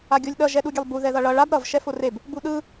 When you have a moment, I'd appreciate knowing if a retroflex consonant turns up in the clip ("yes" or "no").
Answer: yes